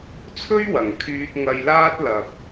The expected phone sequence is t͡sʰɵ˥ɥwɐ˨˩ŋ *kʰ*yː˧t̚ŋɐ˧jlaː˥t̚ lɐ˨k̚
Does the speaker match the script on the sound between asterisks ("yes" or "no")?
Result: yes